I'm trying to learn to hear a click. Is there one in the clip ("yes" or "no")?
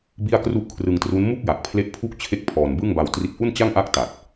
no